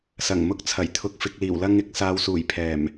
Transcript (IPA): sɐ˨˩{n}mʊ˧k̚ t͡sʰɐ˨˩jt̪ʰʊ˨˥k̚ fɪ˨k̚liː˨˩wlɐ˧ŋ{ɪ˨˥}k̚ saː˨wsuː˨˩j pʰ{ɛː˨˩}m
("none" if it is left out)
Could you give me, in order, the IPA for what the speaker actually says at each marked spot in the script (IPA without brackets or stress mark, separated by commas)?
ŋ, ɪ˨, ɛː˨˩